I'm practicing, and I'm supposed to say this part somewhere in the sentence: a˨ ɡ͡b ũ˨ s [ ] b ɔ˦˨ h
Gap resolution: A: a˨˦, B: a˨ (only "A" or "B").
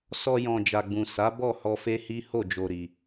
A